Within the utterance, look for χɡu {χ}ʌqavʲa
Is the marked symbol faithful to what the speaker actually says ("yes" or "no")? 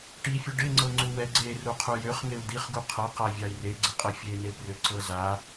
no